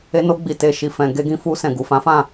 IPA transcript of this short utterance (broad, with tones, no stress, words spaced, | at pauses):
e˧no˧ɡ͡bi˨ te˨ ʃi˨fɛ̃˨ ɡe˧ɡĩ˧fu˧ sɛ̃˨ɡu˨fã˨˦fã˦˨